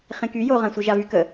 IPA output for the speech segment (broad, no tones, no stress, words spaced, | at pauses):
χẽky joʁãsʷi ʒavykə